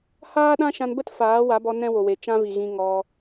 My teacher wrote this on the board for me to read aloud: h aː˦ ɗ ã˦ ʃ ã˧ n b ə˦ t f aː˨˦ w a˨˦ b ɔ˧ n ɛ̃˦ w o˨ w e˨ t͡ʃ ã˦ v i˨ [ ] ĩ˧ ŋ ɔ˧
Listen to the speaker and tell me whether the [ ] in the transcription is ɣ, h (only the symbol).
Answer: ɣ